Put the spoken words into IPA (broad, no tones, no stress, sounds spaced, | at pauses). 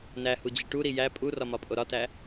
n æ h u d͡ʑ i ʈ u ɾ i j æ pʼ u r ɒ m ɒ pʼ o ɾ ɒ t æ